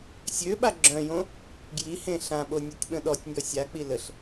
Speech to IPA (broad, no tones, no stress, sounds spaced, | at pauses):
sʲ ø ɓ a ɡ͡ǁ œ̃ j õ | ɡ j i h ẽ ɬ ã ɓ o nʲ o tʲ ɓ ə̃ ɗ ɔ tʲ nʲ ɔ sʲ a k͡p i l ə ɬ